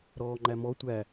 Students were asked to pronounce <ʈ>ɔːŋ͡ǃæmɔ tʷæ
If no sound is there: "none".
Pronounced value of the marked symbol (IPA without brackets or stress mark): ɾ